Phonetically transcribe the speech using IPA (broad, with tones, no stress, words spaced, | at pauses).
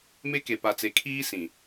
me˦ke˨pa˨t͡se˨ kʰiː˦ sĩ˨